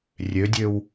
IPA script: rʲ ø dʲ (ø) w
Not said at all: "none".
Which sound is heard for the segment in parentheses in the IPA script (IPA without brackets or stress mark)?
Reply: ø